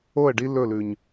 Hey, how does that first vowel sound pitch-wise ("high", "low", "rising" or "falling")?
falling